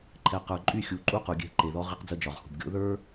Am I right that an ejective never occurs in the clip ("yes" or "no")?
no